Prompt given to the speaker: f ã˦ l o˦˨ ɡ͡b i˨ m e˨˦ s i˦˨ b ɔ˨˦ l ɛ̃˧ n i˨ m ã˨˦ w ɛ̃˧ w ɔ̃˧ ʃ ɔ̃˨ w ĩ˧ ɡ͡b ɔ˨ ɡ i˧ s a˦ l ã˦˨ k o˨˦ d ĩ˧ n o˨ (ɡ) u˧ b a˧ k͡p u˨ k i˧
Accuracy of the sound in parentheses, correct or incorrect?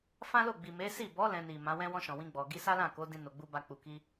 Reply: incorrect